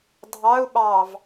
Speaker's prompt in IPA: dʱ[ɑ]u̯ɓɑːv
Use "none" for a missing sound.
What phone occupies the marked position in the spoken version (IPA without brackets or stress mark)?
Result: ɑ